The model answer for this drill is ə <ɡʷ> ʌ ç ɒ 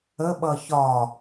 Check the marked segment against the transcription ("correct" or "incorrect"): incorrect